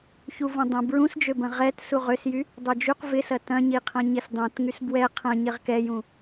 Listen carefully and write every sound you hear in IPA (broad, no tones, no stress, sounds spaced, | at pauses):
ç u v ũ dˤ ɐ̃ b ɹ ũ s d͡ʒ ø b ɐ̃ ʁ ɛ t s u ʁ ø s j y | dˤ ø d͡ʒ y q v ɪ s ɐ t ɐ̃ ɲ i qʰ ɐ̃ ɲ ɪ s dˤ ũ t ŋ y s b w ɛ qʰ ɐ̃ ɲ ɪ ʁ k ɛ j ũ